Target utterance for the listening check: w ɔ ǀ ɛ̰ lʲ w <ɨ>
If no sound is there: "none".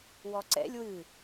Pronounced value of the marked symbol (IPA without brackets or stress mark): ɨ